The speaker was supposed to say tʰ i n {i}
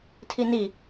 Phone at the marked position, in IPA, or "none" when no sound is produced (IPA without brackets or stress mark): i